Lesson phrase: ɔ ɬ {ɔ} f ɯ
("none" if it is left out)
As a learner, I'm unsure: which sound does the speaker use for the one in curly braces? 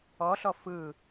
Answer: ɔ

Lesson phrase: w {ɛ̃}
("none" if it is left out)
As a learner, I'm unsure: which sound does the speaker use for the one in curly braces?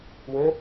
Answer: ɛ̃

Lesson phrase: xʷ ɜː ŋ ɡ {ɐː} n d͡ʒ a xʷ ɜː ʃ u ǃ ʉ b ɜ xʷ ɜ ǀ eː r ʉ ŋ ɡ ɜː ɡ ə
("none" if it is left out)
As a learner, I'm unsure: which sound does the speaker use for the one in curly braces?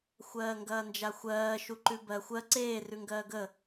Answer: ɐː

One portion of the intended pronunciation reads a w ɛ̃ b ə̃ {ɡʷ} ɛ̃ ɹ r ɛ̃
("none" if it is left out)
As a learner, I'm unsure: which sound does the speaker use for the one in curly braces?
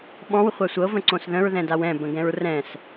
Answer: ɡ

